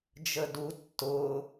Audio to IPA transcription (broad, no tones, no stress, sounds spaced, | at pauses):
d͡ʒ ə d u tː ʊ